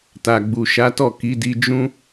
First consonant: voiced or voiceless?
voiceless